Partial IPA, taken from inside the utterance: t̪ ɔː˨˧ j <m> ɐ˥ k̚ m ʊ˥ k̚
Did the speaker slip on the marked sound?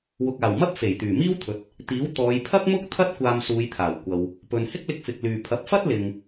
yes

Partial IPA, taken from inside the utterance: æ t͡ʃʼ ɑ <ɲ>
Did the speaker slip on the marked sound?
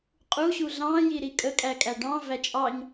no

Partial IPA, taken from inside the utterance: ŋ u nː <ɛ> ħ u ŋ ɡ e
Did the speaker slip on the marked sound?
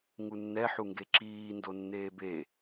no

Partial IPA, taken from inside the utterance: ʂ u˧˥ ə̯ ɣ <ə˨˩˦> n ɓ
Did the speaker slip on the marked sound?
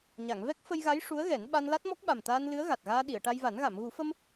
yes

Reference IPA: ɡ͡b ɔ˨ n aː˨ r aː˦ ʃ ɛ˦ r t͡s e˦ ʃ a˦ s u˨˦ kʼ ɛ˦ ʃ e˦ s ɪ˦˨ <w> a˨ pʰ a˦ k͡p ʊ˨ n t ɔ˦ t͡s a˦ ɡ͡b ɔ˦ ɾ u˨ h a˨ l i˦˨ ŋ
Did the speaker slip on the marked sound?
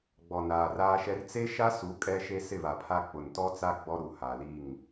yes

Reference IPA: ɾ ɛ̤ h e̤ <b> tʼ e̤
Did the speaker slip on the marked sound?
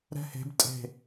no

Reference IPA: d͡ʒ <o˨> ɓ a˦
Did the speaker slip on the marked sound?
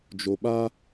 no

